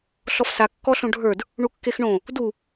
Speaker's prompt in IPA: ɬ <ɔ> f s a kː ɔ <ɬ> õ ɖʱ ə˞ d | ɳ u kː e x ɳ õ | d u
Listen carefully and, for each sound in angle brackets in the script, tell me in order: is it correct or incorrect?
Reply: correct, correct

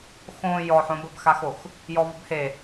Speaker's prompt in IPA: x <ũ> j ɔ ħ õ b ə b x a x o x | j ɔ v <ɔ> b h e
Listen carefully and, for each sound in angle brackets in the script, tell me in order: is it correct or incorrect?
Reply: incorrect: õ, incorrect: ə

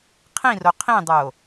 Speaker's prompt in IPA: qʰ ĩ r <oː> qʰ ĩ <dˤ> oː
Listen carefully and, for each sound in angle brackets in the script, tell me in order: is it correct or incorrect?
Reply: incorrect: o, correct

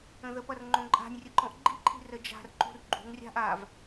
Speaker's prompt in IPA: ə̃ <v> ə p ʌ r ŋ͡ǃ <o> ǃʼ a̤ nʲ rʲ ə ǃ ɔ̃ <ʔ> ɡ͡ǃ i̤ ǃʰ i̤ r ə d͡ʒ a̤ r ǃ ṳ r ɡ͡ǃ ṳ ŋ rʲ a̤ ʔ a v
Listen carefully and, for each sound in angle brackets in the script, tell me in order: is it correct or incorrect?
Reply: incorrect: ð, incorrect: õ, correct

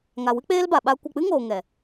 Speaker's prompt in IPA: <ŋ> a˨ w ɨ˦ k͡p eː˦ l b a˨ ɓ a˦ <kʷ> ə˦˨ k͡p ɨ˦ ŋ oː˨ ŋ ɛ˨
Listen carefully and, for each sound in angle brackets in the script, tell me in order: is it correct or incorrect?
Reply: correct, correct

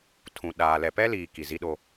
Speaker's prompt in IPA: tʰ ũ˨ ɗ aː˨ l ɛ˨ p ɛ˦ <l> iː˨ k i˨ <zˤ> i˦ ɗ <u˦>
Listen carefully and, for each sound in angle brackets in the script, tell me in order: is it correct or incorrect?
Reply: correct, incorrect: z, incorrect: o˦

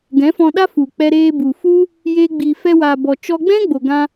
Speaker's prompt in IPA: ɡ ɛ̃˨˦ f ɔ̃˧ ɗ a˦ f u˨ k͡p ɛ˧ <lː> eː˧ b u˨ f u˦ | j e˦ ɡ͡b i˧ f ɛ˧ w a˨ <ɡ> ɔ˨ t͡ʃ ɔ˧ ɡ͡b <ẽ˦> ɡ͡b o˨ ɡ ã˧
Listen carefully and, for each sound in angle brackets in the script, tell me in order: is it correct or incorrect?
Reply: incorrect: ɾ, incorrect: b, incorrect: ɛ̃˦

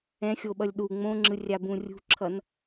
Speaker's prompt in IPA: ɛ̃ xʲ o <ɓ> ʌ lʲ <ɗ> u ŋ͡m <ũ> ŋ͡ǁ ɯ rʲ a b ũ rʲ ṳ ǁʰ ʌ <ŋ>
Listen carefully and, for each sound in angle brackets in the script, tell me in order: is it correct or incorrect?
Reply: correct, correct, incorrect: õ, incorrect: n

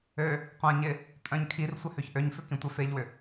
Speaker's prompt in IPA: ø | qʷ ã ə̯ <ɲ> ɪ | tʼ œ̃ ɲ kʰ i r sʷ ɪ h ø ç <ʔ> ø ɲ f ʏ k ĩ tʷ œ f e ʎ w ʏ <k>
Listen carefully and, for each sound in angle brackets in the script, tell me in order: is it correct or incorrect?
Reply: correct, correct, incorrect: none

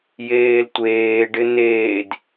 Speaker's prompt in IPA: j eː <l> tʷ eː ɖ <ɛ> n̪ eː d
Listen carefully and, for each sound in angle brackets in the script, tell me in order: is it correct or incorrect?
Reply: correct, incorrect: ɪ

